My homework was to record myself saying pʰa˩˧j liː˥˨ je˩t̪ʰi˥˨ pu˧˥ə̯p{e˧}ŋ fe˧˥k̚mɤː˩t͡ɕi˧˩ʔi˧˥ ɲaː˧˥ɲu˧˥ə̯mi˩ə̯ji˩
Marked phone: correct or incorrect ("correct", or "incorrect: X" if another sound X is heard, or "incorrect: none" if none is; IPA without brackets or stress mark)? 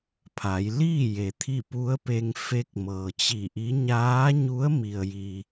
correct